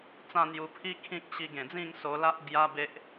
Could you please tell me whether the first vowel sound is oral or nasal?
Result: nasal